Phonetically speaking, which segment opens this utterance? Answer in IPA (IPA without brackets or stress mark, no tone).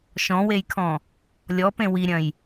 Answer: ʃ